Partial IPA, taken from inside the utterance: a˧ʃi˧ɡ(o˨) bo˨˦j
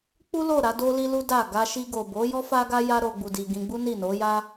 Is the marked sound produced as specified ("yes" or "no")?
yes